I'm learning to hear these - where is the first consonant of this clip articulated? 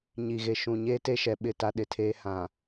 palate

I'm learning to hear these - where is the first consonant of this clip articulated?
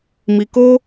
lips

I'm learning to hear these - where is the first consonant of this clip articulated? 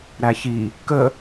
tongue tip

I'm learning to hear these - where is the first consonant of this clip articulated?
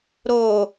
tongue tip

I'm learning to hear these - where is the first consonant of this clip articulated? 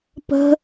lips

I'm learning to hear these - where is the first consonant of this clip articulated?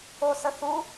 tongue tip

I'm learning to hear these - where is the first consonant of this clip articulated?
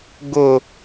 velum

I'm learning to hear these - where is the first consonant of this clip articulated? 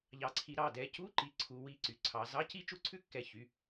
palate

